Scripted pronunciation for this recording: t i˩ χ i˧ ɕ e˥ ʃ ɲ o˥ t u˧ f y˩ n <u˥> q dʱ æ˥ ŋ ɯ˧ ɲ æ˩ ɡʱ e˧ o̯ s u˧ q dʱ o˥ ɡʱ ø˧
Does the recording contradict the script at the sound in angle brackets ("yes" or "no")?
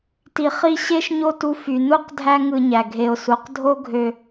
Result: no